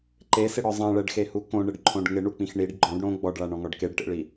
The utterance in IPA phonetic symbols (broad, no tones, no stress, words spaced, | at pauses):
ǃesɪɽɔ zˤãɭɛɖxehu kõɳɪɖǃʰõɖ ŋɪɳuk͡pĩx ɳiɖ ɡ͡ǃɔ̃ɖ ɽõ ɡ͡bɔɖɭaɳɔ̃ŋɔɖ keɖʈḛɭi